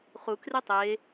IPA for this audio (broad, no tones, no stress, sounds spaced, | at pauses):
χ u k r e tˤ e